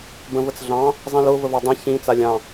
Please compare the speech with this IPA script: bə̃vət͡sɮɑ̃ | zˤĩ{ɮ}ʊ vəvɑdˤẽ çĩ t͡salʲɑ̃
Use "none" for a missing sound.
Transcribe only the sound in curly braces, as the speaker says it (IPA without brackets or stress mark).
l